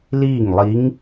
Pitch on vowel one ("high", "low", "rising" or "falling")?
falling